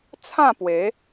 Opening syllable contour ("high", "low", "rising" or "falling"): falling